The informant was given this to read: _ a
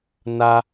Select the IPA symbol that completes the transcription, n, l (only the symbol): n